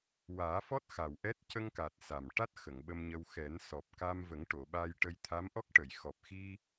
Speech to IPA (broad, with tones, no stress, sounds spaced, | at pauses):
w aː˨˩˦ f ɔ˦˥ t̚ x a˨˩ w ʔ ɛ˦˥ t̚ c ə˧ ŋ k a˨˩ t̚ s a˨˩ m ʈ a˦˥ t̚ x ə˨˩˨ ŋ ɓ ə˧ m ɲ ə˧ w x ɛ˨˩˦ n s ɔ˨˩ p̚ k a˧ m v ə˨˩˦ ŋ ʈ o˨˩˨ ɓ a˧ j ʈ ə˧ j t̪ʰ a˧˥ m ʔ ɔ˦˥ k̚ ʈ ə˨˩˨ j x ɔ˨˩ p̚ x i˧